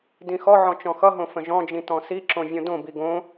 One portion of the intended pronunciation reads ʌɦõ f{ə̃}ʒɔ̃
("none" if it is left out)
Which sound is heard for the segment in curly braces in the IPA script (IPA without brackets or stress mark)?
ə̃